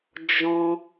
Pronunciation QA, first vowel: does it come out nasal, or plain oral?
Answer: nasal